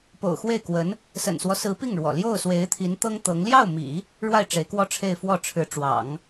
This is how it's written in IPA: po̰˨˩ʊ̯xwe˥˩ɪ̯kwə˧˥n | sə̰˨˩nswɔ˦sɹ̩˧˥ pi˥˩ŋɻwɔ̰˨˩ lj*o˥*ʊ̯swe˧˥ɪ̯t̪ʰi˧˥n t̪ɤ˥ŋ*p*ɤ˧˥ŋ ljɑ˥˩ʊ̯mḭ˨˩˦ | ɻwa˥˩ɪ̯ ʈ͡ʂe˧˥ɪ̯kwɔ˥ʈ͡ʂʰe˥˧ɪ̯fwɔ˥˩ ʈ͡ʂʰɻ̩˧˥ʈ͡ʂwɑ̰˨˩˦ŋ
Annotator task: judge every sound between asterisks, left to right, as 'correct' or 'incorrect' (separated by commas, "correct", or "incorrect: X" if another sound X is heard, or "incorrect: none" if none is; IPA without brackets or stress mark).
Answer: incorrect: o˥˩, incorrect: t̪